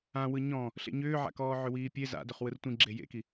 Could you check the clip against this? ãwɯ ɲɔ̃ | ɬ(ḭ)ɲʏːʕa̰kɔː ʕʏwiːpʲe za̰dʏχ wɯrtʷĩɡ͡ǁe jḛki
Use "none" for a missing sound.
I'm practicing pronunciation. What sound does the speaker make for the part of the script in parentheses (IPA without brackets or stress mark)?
ḛ